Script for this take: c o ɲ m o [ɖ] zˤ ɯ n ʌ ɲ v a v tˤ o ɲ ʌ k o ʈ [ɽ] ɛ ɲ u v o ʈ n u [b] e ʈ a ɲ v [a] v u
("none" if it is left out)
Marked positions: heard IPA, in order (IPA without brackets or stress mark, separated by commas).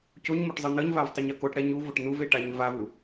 ʈ, ɽ, v, a